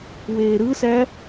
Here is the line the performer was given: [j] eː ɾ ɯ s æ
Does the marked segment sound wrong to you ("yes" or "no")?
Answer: yes